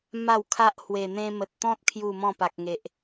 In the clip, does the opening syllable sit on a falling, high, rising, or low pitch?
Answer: falling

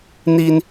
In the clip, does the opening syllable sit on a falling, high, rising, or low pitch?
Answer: high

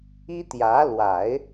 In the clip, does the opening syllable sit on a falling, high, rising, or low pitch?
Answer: high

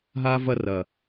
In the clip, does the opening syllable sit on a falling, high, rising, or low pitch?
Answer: high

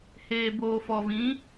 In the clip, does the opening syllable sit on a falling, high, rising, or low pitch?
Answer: low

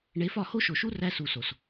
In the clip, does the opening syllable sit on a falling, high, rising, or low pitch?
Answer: rising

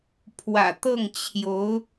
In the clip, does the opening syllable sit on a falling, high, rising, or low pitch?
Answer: low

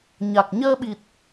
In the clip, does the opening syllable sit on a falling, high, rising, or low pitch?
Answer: low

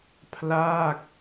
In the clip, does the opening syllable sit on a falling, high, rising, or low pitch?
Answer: falling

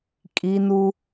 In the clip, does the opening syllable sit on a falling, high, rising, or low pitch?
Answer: high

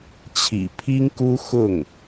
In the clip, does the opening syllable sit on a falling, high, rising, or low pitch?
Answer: low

